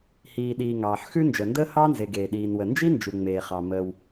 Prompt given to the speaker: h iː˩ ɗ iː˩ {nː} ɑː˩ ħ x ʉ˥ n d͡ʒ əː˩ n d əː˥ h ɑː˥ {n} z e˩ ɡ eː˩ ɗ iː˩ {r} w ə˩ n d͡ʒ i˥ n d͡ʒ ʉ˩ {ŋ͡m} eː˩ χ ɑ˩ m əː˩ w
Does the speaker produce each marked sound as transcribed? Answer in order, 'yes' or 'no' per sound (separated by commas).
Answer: no, yes, no, yes